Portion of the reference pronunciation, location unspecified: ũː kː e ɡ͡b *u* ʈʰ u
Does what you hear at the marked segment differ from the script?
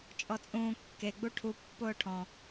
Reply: no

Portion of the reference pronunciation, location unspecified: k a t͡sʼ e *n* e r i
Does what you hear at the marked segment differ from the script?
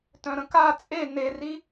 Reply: no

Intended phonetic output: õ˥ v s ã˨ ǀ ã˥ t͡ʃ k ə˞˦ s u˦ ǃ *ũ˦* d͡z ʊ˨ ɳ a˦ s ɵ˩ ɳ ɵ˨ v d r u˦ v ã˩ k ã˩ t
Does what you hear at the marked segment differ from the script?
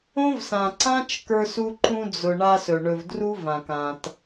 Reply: no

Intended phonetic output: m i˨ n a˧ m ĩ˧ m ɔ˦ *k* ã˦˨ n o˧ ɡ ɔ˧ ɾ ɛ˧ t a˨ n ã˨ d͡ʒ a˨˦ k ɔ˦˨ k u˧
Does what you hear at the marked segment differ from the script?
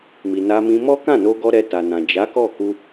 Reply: no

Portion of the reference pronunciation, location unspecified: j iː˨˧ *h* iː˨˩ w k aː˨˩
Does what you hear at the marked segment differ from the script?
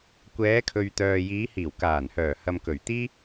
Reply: no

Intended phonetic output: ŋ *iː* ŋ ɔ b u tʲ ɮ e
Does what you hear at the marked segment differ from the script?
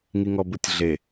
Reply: yes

